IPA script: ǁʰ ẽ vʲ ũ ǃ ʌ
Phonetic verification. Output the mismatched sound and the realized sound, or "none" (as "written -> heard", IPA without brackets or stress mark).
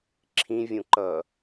ẽ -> ĩ